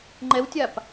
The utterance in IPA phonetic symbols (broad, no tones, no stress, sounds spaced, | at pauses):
ŋ͡ǃ ɛ w tʲ a p